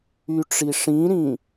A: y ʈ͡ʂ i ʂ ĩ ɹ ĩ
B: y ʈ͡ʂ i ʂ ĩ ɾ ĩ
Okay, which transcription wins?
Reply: B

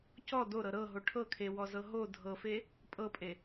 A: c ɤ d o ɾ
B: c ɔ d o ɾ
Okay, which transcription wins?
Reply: B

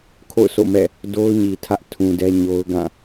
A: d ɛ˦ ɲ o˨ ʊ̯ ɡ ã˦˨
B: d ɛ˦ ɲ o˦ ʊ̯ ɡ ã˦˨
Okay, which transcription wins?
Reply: B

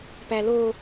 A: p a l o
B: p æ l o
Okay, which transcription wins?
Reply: B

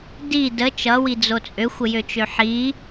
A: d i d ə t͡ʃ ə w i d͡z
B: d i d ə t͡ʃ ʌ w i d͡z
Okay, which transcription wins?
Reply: B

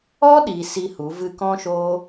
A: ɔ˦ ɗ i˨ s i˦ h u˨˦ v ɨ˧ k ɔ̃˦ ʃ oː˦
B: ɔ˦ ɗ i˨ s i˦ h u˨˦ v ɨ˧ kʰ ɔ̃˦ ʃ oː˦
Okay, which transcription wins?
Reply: A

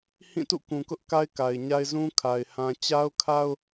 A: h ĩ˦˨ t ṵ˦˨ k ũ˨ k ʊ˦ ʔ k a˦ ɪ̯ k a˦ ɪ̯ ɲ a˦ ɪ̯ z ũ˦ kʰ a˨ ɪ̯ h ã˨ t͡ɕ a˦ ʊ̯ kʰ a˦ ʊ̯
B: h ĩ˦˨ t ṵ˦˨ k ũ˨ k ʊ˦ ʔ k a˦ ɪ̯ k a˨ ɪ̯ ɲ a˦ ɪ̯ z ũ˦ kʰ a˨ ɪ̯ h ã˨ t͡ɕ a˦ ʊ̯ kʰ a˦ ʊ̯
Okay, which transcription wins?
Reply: B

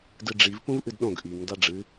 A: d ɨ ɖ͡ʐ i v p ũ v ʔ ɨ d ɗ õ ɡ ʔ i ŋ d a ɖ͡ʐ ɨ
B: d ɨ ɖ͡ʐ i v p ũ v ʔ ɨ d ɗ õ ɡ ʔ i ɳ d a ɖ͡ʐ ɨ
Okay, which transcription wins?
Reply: A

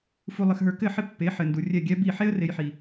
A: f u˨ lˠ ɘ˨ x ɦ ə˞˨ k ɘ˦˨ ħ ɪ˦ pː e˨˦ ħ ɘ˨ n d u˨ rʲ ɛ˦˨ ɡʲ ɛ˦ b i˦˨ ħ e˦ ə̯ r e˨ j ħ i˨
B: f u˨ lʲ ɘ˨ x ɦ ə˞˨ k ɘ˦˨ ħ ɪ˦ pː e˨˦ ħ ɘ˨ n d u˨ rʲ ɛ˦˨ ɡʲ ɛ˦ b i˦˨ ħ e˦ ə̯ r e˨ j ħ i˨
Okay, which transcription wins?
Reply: A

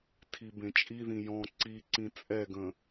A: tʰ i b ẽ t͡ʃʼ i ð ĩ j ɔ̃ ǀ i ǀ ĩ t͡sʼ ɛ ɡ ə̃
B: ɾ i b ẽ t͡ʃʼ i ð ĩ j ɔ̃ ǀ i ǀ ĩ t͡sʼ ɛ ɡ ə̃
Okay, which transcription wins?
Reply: A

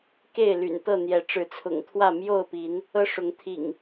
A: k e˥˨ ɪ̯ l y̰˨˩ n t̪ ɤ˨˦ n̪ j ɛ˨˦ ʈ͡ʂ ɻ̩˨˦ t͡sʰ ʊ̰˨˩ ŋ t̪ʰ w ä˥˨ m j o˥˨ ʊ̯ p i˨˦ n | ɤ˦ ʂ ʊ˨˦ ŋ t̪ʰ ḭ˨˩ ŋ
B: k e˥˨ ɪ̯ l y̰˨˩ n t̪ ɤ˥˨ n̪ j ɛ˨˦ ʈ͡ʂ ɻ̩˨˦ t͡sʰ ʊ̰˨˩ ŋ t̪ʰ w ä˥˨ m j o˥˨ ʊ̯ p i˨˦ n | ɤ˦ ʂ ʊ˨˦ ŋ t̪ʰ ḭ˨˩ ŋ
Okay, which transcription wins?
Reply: B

